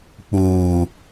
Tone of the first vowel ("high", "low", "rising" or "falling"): low